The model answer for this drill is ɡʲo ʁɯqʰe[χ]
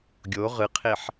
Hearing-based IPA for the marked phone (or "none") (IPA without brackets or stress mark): ħ